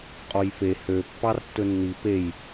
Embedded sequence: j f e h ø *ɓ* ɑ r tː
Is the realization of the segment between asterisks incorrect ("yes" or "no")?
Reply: yes